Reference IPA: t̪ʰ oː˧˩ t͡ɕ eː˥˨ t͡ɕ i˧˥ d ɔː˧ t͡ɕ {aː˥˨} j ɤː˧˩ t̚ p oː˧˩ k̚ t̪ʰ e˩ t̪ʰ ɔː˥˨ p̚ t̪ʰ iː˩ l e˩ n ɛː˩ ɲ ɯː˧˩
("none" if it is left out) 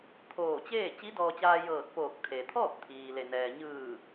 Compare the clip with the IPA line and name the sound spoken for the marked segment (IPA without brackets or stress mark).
aː˧